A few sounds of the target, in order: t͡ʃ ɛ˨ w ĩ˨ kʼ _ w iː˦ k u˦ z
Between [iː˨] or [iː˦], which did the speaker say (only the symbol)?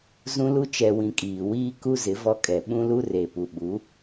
iː˨